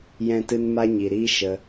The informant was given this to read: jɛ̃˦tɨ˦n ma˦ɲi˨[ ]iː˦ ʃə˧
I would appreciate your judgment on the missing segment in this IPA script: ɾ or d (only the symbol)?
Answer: ɾ